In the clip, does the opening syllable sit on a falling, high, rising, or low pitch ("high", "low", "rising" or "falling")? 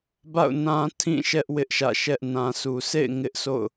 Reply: falling